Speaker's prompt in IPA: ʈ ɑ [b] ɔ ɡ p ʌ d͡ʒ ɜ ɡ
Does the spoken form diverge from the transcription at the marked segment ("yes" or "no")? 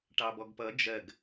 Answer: no